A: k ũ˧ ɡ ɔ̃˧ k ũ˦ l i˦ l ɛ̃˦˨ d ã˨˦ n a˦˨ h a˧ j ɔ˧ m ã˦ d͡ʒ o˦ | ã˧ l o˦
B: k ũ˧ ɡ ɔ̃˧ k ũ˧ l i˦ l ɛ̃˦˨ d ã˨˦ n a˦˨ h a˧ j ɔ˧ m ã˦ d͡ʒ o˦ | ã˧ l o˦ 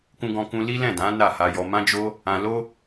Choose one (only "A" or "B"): B